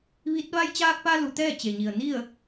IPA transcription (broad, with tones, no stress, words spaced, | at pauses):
ʋi˧˥t̚ ʋa˧jt͡ɕaː˧k̚pa˧ lu˩˧t̪ɛː˥˨t͡ɕe˩ɲi˩ə̯ ni˥˨ə̯